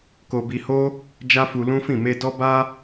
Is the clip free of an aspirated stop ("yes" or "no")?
yes